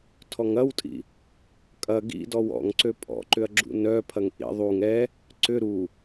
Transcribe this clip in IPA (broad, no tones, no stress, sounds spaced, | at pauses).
tʰ ɔ ŋ ɐ w tʼ ḭ | kʼ ɐ ɡ ḭ d ɔ w ɔ̰ ŋ ǀ ø pʼ ɔ̰ ǃ ʏ ɐ̯ ɡ͡ǁ ṵ n œ pʰ ɐ ŋ ʔ ḭ ðˤ u ŋ ɛ | ǀ ʏ ɾ u